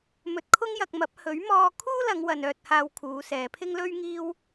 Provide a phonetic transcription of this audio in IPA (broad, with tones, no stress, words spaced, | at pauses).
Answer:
mɵ˧t̚kʰʊ˥ŋjɐ˧k̚mɐ˨˥p̚ hɵ˨˥ɥmɔː˧ kʰuː˥ lɐ˨˧ŋwɐ˨n œː˧t̚haː˧w kʰuː˨˧sɛː˨˧pʰɪ˥ŋ lɵ˥ɥŋiː˥w